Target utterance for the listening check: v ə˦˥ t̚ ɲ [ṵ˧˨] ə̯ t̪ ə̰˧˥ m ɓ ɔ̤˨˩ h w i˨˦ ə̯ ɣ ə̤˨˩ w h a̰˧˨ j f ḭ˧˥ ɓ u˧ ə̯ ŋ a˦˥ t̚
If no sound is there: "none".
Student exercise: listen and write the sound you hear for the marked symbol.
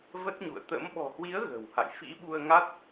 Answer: ṵ˧˨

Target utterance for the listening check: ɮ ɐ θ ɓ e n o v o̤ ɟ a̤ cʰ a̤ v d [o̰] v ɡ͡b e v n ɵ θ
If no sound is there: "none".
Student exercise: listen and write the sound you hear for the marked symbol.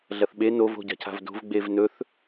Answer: o̤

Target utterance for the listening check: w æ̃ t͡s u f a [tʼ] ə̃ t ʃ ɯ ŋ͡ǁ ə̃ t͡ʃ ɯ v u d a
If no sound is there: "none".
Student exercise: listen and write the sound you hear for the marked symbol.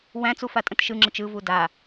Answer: tʼ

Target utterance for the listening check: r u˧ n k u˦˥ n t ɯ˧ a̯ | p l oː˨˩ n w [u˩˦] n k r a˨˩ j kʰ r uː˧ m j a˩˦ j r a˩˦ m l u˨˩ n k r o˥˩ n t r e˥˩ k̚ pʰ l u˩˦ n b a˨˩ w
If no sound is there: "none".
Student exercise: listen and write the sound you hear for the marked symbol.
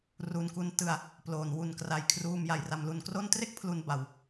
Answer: u˨˩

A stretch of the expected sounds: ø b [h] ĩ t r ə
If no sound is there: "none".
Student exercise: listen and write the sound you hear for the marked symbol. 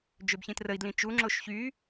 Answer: ç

